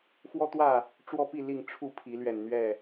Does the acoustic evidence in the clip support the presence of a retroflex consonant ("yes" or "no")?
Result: yes